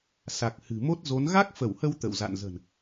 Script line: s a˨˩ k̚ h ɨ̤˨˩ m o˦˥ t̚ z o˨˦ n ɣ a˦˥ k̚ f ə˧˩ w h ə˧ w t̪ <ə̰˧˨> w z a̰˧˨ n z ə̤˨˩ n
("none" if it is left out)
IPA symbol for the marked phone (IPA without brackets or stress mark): ə̰˧˨